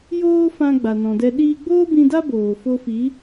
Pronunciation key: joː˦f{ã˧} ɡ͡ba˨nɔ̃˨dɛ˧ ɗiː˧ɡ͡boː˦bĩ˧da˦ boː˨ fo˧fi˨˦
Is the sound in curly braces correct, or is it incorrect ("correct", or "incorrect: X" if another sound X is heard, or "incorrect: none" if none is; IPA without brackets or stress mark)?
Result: correct